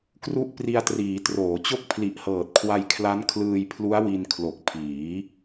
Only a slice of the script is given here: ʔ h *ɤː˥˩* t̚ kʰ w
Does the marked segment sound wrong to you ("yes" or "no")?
yes